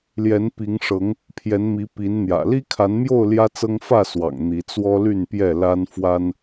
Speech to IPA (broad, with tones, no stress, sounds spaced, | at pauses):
l j ɛ˨˦ n p i˨˦ ŋ ʂ ɤ˨˦ ŋ | pʰ j ɛ˨˦ n m i˨˦ p i˨˦ n n̪ j ä̰˨˩ l i˦ kʰ a˨˦ n m j o˥˨ ʊ̯ l j ä˦ t͡s ɤ˦ ŋ f ä˥˨ s w ɑ̰˨˩ ŋ n̪ i˨˦ t͡s w ɔ˦ l y˥˨ n p j ɛ˥˨ l a˦ n f w a˦ n